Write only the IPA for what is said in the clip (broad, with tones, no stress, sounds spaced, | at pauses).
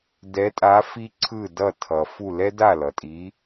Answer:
d ɛ˨˥ tʼ a˨˥ f i˥ ǀʰ ɯ˥˩ d ʌ˥˩ tʰ ʌ˩ f u˥˩ l ɛ˥ d a˥˩ l ʌ˩ tʼ i˨˥